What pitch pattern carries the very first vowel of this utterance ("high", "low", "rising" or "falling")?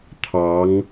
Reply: rising